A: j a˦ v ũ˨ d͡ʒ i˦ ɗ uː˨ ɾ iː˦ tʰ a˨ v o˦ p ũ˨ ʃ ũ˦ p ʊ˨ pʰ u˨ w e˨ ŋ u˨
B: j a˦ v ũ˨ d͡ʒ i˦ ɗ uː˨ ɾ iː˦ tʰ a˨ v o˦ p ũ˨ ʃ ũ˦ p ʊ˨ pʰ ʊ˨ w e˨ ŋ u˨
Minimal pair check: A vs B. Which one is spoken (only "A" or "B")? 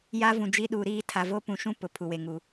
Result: A